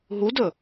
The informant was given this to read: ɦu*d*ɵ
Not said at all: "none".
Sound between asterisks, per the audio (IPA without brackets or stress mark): d